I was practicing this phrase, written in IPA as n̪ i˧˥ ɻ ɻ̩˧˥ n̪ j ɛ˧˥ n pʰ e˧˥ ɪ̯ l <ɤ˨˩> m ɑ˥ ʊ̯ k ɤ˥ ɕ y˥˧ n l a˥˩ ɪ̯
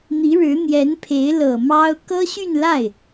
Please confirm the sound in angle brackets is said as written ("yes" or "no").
yes